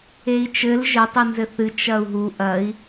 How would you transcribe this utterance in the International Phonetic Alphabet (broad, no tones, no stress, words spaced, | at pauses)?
ei̯t͡ʃɘl ʒɘtˤi nzɘθɨ t͡ʃɐu̯ɦu ʔɐi̯